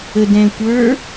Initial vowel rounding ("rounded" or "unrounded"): unrounded